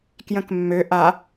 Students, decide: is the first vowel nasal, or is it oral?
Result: nasal